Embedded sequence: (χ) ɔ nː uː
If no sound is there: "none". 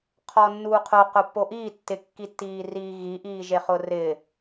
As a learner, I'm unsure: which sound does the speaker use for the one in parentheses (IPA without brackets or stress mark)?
qʰ